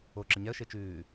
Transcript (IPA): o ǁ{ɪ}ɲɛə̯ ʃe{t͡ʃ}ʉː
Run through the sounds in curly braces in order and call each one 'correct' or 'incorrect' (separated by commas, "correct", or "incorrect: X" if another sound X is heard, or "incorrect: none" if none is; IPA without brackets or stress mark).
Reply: correct, correct